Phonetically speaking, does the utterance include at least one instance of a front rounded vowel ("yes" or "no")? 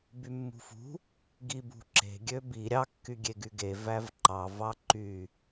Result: yes